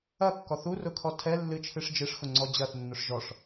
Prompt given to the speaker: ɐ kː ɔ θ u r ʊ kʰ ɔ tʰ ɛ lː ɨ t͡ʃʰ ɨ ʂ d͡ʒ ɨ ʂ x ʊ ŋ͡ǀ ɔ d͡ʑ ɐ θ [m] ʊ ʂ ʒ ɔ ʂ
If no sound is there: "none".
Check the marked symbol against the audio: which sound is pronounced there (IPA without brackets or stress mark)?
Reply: nː